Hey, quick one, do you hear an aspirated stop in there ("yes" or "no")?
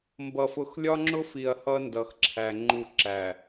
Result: yes